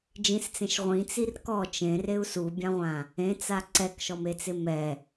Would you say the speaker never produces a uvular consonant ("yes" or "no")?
no